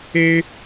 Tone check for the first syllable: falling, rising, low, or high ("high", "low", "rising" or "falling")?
high